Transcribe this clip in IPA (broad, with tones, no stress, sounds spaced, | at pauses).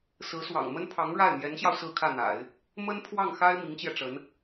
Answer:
s ɹ̩˧˥ s w ɑ̰˨˩ ŋ m ə˥ n pʰ ɑ˧˥ ŋ ɻ a˥˩ ɪ̯ m j ɛ˧˥ n ɕ j ɑ˧ ʊ̯ s ɹ̩˥˧ kʰ ä˥˩ n̪ a̰˨˩˦ ɪ̯ | m ə˥ n pʰ w ɑ˥˩ ŋ x a˥ ɪ̯ m i˧˥ ŋ t͡ɕ j ɛ˧ ʈ͡ʂ ə˧˥ n